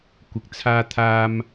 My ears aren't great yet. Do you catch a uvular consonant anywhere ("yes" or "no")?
no